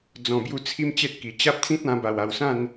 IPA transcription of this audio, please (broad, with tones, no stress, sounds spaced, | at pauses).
d͡z ɔ̃˨˩ b j u˧ t͡sʰ i˦ m t͡ɕ e˦ t̚ k i˨˩ t͡ɕ a˦ p̚ t͡s ĩ˦ t̚ ã˧ b a˨˩ w a˨˩ w s ã˥˧ n